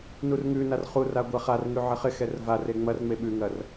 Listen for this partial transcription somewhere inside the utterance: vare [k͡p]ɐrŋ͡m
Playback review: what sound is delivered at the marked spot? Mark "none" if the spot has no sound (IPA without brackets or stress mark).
ŋ͡m